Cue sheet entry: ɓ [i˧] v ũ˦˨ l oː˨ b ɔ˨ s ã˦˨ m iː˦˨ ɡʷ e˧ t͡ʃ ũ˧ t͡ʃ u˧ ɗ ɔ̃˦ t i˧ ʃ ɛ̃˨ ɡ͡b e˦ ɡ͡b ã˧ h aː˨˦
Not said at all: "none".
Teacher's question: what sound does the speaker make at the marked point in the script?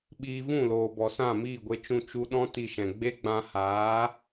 iː˧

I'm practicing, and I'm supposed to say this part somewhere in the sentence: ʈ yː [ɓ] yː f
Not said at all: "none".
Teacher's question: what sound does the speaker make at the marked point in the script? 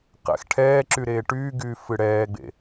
ɡ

